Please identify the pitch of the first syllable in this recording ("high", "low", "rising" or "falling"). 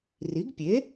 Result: rising